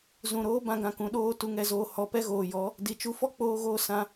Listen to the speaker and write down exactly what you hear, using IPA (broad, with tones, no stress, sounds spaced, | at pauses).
z ũ˨ ɾ oː˦ b ã˧ ɡ ã˨ k ũ˨ ɗ oː˧ t u˨˦ ŋ ɛ˧ z oː˧ h ɔ˨ p ɛ˦ ɣ oː˨ j ɔ˨˦ | d i˨ t͡ʃ u˧ f ɔ˦ k͡p oː˧ ɣ oː˧ s ã˦